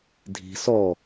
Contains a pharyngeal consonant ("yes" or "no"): no